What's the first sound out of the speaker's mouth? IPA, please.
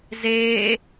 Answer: z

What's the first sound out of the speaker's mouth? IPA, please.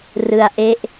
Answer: r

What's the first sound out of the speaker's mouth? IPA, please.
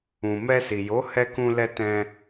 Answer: ũ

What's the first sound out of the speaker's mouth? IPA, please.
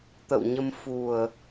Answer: t̪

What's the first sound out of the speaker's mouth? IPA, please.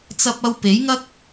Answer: t͡s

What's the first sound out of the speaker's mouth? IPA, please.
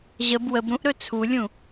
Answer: ʑ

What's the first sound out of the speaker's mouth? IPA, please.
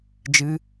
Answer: d͡ʒ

